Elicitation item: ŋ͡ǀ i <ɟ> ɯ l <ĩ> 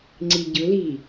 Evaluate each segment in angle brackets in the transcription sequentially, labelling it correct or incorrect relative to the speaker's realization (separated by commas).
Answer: correct, incorrect